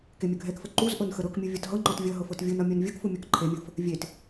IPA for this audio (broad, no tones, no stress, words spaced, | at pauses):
kemʲʌɡʱɛkfə ǃuz ʔɤnxəɾɤkmʲu vʲʌtɦɤŋ͡ǃɔt vʲʌ ɦɤfɤtvʲunʌ mʲɤnvʲɤkfu mʲɔkǃʰemʲɤf | vʲet